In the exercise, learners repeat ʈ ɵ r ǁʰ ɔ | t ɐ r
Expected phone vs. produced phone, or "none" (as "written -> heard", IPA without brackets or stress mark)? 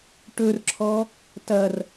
none